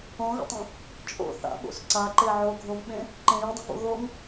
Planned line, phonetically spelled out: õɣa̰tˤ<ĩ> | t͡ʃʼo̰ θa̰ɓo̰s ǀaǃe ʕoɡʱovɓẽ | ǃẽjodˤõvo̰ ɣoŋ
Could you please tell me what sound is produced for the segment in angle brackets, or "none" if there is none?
ẽ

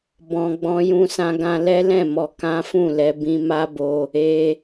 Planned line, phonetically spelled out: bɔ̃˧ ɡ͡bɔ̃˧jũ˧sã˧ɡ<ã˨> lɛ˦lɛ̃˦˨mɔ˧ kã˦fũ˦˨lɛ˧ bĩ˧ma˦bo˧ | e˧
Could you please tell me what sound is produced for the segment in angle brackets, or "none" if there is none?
ã˧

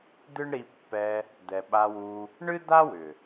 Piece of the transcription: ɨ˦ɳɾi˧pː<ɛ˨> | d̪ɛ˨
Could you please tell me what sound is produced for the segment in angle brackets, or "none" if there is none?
ɛ˧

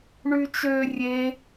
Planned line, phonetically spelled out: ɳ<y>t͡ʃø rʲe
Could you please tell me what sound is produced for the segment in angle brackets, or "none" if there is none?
y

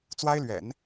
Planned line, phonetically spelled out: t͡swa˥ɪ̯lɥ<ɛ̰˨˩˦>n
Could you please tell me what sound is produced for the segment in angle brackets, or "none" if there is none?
ɛ̰˨˩˦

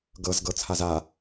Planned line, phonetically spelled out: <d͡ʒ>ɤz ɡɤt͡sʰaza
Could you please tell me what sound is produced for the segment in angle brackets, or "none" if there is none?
ɡ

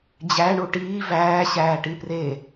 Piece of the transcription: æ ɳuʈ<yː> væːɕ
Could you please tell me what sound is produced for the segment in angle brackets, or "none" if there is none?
iː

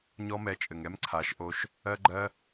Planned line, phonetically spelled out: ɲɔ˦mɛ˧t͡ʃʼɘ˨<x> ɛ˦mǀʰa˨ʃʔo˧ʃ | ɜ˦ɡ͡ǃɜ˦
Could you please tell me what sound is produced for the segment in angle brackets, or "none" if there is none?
ŋ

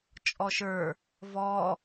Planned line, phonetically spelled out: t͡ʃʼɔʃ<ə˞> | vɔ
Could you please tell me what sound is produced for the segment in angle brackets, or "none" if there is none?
ə˞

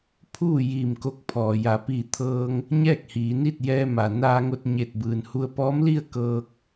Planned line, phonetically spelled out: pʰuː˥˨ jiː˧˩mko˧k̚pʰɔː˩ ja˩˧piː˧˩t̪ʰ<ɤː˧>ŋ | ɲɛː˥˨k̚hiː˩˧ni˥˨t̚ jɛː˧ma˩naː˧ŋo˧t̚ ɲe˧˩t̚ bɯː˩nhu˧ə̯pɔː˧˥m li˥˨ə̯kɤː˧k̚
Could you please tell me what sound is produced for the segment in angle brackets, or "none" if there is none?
ɤː˧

